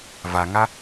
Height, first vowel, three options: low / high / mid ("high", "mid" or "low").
low